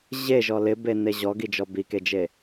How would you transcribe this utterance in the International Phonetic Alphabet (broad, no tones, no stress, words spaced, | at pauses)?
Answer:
ʑeʒɔ lɪbene ʑɔɡid͡ʒɔ biked͡ʒe